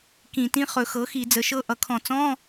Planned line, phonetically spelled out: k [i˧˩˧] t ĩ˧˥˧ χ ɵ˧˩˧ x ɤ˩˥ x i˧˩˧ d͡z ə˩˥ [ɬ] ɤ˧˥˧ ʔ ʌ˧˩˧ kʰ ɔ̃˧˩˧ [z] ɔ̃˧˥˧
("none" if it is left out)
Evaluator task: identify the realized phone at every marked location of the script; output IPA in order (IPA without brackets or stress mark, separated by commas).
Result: ĩ˧˩˧, ʃ, t͡s